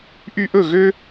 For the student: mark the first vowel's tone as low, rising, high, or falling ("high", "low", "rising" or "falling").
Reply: high